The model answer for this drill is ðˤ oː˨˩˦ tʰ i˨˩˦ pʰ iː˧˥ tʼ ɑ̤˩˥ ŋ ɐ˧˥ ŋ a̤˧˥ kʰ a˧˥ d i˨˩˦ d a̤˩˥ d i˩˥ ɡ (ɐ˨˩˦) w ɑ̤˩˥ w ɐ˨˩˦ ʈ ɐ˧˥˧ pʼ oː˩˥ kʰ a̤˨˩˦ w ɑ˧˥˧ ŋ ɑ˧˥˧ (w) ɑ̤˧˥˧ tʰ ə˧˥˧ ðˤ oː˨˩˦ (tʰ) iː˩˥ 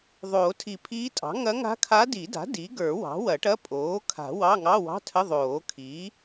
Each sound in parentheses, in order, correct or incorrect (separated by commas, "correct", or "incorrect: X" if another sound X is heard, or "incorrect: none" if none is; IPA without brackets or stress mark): incorrect: ə˞˨˩˦, correct, incorrect: kʰ